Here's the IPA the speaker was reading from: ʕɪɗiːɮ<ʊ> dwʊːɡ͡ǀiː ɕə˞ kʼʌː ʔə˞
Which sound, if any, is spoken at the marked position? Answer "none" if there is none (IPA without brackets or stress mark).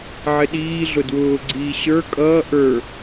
ʊ